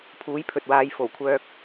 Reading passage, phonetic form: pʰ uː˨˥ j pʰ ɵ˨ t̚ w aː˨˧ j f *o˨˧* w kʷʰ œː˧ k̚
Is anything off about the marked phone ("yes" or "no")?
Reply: yes